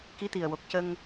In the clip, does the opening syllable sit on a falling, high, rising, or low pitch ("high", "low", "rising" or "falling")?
rising